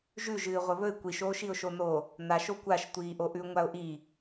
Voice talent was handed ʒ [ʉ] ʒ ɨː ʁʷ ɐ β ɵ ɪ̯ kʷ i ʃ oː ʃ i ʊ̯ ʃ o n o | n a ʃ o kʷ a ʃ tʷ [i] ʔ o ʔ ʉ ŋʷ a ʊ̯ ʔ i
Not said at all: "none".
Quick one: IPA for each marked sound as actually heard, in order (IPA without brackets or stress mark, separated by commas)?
ʉ, iː